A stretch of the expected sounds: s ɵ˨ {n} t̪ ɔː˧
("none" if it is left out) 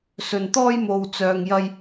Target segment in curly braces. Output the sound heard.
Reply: n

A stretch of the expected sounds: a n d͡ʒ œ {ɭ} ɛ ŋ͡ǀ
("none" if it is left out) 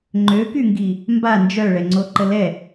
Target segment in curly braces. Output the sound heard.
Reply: ɭ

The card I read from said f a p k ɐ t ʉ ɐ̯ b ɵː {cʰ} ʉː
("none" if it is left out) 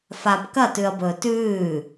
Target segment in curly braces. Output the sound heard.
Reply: t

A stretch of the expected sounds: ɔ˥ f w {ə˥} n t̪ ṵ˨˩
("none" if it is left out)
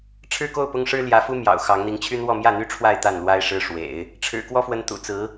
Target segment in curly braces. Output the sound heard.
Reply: ə˧˥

